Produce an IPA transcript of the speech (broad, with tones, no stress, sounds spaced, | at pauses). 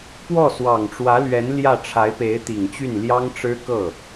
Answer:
p w ɔ˥˩ s w ɑ˨˩ ŋ ʈ͡ʂ w ä˧˥ l ɥ ɛ˧˥ n l j ä˥˩ ʈ͡ʂʰ a˧˥ ɪ̯ p e˧˥ ɪ̯ t̪ i˨˩ ŋ t͡ɕ y˥˩ n l j ɑ˥ ŋ ʈ͡ʂ ɻ̩˥ k ɤ˥˩